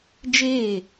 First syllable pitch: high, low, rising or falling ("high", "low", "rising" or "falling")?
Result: falling